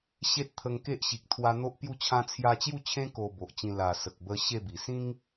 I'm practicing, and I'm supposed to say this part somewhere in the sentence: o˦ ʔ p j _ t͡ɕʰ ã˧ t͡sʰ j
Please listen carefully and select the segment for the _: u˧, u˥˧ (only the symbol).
u˥˧